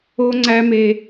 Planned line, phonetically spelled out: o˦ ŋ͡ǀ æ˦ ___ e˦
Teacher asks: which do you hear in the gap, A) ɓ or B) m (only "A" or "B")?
B